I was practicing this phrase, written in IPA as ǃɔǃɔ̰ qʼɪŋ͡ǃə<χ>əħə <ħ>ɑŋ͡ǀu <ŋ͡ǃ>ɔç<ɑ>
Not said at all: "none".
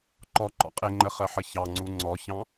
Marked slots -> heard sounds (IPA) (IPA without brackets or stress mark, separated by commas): χ, ç, ŋ͡ǀ, ɑ̃